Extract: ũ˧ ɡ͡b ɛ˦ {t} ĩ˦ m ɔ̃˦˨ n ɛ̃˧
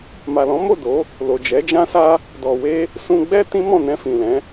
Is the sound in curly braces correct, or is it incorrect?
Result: correct